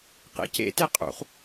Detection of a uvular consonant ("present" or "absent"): present